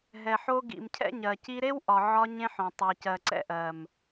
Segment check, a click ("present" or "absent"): present